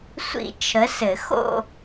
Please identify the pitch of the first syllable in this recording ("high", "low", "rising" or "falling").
high